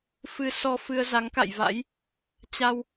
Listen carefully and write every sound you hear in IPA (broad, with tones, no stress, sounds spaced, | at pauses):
f ɨ˧ s ɔ˧ f ɨ˧ ə̯ z a˨˦ ŋ k a̰˧˨ j v a̰˧˥ j | t͡ɕ a˧ w